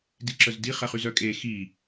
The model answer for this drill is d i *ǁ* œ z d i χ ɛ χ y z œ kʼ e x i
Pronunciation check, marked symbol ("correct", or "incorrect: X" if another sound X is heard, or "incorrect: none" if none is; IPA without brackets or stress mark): correct